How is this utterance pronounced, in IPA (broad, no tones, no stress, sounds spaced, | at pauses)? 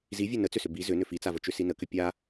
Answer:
z i vʲ ɛ n ə t͡s ʏ s ʏ b i z ʏ n ʏ f i t͡s a v ə t͡ʃ ʏ s i n ə k ʏ pʲ a